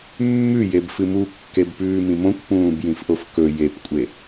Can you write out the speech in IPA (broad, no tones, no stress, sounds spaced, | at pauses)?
mː ʉ j e b f ɨ m u kː e b p ʉː m ĩ m õ kʷ p ũː b j ĩ f ʔ o f k ɵ j e p kʷʼ e